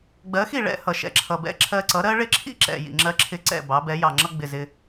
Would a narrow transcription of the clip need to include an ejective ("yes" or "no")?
no